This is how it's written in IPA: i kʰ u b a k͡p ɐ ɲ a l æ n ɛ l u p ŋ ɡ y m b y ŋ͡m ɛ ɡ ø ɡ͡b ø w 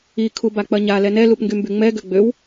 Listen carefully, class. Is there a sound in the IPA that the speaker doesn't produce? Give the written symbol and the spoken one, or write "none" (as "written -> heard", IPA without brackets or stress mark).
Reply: æ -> ɛ